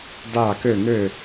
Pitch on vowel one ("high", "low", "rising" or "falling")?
falling